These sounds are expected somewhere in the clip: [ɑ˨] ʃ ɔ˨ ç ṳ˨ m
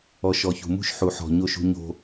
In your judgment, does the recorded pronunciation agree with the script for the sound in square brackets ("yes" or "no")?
no